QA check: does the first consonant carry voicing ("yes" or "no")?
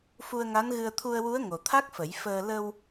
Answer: no